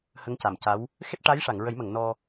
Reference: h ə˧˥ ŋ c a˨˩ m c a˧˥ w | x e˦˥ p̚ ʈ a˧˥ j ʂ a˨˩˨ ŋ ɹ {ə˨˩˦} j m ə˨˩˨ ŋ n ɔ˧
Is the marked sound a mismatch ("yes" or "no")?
no